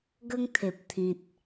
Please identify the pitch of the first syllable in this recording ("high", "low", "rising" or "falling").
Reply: high